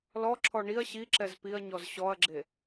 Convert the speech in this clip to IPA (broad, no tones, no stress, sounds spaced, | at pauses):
l ɔ ǁʰ ɔ ɳ i ɐ̯ ɕ i ǁ ɛ z p i ɐ̯ ɲ ɔ z ɕ ɔ ɐ̯ ɡ͡ǁ e